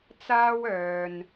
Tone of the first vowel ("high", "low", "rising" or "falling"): high